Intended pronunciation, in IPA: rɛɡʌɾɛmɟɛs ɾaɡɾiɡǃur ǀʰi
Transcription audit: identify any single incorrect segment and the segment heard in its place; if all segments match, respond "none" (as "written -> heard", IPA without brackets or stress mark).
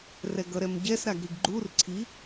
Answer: ǃ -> ɡ͡ǃ